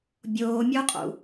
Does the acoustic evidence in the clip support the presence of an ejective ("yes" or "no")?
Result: yes